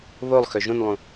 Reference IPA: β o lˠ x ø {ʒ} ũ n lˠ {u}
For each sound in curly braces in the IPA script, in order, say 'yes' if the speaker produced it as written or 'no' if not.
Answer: yes, no

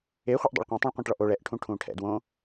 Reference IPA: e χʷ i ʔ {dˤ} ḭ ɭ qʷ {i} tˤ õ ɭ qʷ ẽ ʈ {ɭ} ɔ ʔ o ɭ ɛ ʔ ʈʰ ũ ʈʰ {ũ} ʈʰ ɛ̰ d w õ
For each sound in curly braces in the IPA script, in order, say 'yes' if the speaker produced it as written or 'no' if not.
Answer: yes, no, yes, no

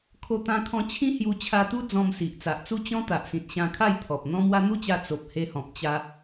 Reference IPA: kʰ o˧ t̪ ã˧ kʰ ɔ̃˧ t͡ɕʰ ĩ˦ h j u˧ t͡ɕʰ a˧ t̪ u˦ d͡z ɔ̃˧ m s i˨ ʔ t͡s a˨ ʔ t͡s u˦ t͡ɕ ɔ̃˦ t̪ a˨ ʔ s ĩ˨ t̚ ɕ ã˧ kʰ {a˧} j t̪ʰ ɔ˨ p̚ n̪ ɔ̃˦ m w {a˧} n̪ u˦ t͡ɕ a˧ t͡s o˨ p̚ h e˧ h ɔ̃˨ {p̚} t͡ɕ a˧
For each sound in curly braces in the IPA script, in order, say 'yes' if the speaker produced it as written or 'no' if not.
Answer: no, no, yes

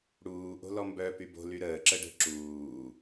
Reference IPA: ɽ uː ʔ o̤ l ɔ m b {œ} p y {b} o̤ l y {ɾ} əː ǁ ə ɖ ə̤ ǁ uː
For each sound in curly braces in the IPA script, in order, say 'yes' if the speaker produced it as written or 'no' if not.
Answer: yes, yes, yes

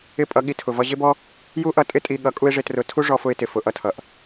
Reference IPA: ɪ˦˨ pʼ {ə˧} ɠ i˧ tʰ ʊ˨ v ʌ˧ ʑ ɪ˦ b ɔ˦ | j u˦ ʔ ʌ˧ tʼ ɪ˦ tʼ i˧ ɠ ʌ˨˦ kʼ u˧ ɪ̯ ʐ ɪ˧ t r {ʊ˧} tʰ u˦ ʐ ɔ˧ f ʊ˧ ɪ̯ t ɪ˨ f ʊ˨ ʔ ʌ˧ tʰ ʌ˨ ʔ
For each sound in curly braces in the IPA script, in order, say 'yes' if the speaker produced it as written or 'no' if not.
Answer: no, yes

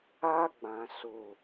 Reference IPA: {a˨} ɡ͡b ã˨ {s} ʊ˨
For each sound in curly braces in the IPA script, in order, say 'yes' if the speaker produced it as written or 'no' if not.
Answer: no, yes

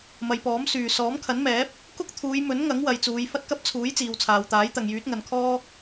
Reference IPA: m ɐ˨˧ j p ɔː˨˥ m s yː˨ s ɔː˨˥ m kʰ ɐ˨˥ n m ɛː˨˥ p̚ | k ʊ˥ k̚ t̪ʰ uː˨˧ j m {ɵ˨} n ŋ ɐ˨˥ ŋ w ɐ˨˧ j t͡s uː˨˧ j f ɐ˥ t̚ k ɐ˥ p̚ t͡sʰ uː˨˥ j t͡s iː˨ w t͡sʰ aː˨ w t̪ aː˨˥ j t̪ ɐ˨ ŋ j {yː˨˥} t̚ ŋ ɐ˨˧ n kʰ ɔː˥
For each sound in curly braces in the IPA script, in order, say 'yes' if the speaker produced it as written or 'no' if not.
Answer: no, yes

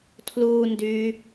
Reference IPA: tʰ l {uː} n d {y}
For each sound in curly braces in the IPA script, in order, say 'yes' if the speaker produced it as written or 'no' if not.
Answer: yes, yes

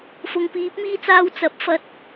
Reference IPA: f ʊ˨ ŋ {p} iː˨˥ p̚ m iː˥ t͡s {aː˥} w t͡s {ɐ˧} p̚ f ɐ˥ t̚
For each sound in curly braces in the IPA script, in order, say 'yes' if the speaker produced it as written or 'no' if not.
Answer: yes, yes, yes

